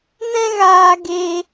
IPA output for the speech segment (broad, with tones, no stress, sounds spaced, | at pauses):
n ɛ̃˦ ɣ aː˧ ɡ eː˧